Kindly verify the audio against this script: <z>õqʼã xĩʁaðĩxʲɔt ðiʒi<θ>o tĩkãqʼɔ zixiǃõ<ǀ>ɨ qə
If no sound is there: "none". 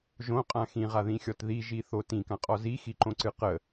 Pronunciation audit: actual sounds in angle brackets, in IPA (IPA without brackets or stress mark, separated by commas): ʒ, θ, ǀ